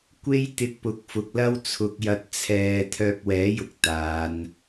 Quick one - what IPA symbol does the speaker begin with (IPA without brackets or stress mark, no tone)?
kʷ